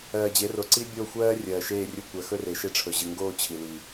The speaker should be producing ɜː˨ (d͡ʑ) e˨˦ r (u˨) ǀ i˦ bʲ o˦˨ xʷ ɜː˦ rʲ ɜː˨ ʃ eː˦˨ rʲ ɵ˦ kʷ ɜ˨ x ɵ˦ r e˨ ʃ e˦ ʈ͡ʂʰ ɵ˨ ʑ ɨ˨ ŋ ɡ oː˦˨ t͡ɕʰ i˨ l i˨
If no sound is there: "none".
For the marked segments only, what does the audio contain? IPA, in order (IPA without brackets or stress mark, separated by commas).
d͡ʑ, o˨